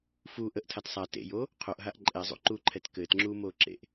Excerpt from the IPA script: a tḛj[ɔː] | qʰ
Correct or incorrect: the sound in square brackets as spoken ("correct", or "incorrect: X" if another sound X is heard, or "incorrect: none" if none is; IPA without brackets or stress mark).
incorrect: oː